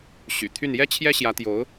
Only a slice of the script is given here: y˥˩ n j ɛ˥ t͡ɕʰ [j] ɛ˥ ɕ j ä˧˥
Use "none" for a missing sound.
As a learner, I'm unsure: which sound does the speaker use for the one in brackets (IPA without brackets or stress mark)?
j